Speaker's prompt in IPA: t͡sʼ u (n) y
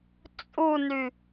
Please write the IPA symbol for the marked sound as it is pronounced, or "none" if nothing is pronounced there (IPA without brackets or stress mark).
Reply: n